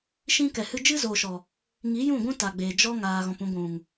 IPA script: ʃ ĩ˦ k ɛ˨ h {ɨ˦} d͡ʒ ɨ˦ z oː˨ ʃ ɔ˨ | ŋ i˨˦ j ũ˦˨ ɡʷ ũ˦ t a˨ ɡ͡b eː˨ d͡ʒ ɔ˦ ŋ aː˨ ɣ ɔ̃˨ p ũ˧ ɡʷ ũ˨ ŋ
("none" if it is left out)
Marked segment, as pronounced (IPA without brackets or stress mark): ɨ˧